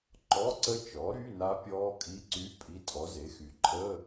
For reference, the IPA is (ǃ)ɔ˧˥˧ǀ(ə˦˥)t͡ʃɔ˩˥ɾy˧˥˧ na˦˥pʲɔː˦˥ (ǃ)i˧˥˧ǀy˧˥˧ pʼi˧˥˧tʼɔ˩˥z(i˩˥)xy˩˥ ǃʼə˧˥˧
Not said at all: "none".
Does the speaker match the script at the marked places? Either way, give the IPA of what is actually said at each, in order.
ǃ, ə˦˥, kʼ, e˩˥

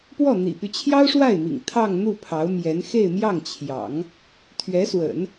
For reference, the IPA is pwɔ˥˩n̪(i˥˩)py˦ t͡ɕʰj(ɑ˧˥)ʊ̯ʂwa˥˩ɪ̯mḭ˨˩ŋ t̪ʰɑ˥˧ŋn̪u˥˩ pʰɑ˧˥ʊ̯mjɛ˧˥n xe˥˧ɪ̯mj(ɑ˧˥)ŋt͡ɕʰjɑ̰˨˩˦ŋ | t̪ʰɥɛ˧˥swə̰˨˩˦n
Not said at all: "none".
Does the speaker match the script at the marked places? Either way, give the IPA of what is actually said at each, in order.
ḭ˨˩, ɑ˥, ɑ˥˩

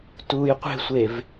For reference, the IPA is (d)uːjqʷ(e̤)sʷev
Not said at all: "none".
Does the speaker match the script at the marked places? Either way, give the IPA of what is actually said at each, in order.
t, e̤

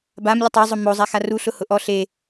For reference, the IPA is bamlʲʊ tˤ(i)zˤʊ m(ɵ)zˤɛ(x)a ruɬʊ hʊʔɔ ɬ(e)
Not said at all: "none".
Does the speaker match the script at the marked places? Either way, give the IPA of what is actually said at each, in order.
e, o, x, e

